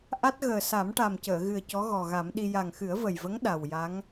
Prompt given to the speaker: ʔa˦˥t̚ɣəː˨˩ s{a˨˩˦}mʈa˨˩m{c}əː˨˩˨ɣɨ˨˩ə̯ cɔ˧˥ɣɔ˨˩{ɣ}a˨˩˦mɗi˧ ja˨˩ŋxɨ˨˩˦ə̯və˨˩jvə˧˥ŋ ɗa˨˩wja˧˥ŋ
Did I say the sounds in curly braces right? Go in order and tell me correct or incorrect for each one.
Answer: correct, correct, correct

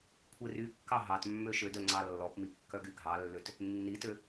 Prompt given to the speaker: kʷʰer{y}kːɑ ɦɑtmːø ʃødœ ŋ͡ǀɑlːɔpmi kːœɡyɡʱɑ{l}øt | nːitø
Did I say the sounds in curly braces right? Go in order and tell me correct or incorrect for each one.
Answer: correct, incorrect: lː

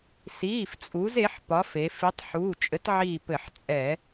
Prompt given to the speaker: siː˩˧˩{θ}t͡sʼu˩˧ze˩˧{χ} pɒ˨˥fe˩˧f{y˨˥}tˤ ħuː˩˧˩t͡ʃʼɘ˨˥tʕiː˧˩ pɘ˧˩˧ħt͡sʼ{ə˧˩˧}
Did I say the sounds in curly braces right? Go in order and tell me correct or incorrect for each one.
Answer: incorrect: f, incorrect: ħ, incorrect: i˨˥, incorrect: ɛ˧˩˧

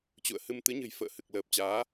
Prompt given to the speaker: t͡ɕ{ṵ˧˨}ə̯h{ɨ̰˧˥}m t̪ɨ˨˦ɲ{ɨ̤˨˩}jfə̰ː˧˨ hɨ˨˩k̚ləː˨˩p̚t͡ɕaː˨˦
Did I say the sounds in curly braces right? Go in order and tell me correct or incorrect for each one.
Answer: correct, incorrect: ɨ˧, correct

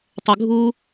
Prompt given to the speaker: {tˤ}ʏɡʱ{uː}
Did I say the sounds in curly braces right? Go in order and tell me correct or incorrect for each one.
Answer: correct, correct

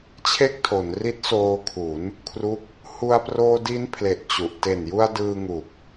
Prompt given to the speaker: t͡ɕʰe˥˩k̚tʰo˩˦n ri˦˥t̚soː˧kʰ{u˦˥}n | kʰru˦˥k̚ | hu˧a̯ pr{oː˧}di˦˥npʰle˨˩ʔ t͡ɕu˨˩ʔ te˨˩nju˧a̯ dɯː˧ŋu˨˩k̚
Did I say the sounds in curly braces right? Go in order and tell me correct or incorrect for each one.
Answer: incorrect: u˩˦, correct

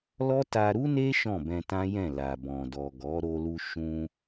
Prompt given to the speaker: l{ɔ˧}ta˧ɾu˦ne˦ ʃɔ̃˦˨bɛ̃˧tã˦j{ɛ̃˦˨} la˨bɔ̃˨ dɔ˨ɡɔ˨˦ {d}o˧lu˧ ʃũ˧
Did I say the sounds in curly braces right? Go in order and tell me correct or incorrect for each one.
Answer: incorrect: ɔ˦, correct, incorrect: ɾ

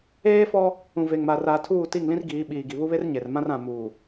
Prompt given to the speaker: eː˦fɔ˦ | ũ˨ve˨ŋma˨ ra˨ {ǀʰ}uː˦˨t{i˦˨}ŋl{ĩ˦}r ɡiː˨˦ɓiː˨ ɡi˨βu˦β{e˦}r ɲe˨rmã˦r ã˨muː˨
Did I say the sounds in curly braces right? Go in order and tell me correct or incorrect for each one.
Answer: incorrect: tʰ, correct, correct, correct

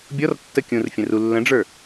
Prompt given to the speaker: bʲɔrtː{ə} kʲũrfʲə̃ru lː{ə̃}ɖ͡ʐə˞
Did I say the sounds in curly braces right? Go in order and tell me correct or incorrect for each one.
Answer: correct, correct

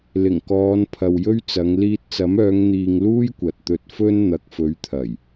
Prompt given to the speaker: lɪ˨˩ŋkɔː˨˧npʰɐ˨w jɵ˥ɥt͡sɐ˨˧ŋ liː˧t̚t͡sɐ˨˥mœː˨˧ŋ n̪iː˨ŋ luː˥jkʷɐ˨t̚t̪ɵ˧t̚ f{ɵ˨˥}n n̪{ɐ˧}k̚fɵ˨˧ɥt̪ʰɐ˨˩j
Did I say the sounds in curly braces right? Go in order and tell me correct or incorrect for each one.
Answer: incorrect: ɵ˥, incorrect: ɐ˨

